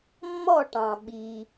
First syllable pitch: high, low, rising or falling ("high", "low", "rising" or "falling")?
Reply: falling